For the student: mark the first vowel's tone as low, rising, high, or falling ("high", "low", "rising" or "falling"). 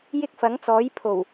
high